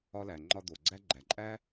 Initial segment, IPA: ɒ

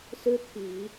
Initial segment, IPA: s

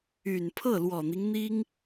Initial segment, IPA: y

